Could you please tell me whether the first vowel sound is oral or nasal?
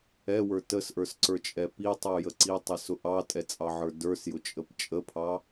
oral